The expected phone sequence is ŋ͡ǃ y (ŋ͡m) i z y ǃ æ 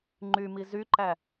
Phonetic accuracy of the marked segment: incorrect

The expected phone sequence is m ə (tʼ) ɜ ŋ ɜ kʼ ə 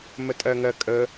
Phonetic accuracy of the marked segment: correct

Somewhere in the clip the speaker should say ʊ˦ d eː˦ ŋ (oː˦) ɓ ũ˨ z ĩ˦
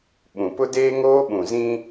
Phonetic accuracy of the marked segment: correct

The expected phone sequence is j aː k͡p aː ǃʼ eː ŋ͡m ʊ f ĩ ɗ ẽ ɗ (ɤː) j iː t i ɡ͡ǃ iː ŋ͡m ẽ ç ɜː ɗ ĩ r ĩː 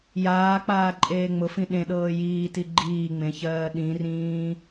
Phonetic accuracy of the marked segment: correct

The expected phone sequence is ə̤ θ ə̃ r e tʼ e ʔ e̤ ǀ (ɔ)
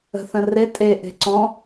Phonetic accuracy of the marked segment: incorrect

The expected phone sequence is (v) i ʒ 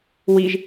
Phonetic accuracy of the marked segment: incorrect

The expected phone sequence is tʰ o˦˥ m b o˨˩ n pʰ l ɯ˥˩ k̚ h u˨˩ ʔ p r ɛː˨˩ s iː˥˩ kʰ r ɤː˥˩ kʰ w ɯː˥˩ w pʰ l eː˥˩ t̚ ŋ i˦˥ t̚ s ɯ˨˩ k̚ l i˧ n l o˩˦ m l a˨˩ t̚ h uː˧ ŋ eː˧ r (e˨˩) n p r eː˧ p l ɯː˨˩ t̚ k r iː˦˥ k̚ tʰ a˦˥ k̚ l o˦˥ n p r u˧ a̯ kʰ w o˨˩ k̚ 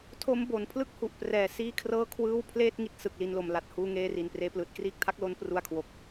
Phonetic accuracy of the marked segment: incorrect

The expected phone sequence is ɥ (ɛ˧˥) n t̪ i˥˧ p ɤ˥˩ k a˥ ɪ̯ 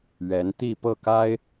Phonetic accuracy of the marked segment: correct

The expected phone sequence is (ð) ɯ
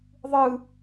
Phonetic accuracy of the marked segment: incorrect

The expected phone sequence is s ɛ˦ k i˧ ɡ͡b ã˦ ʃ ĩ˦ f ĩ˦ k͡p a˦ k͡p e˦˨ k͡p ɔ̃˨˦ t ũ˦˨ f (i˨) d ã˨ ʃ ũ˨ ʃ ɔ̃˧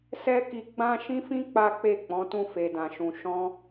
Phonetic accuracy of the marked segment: incorrect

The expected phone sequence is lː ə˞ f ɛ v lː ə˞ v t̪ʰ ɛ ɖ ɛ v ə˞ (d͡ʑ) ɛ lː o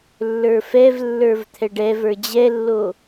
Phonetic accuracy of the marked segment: correct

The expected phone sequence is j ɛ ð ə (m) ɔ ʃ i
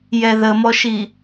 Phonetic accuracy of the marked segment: correct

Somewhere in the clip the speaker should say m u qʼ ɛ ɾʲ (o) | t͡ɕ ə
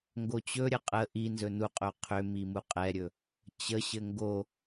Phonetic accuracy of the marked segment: incorrect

